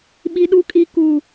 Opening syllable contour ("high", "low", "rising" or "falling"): high